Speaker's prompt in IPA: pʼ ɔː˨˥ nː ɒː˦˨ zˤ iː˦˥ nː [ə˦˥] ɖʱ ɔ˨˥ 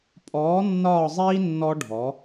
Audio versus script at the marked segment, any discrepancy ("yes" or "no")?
yes